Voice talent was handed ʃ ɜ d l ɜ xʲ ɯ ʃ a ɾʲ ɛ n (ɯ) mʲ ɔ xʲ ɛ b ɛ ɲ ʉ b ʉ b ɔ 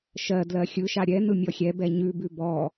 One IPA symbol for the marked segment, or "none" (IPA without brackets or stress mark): ɯ